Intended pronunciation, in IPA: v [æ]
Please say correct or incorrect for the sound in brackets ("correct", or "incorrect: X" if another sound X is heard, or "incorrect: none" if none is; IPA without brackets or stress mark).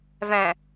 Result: incorrect: æ̃